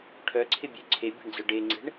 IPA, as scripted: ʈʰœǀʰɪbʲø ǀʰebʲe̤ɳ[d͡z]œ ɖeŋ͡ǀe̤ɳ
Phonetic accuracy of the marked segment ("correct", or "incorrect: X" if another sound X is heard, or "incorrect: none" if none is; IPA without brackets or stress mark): correct